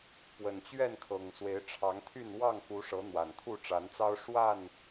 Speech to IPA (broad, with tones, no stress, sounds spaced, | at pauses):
p w ə˨˩ n t͡ɕ ɥ ɛ˥˨ n kʰ ɤ˨˩ ŋ s w e˨˦ ɪ̯ ʈ͡ʂʰ ɑ˨˦ ŋ t̪ʰ y˥˨ n w ɑ˥˨ ŋ k u˨˦ ʂ ɤ˨˦ n̪ w a˨˩ n t̪ʰ u˥˨ ʈ͡ʂ a˨˦ n t͡s ɑ˦ ʊ̯ ʂ w a˥˨ n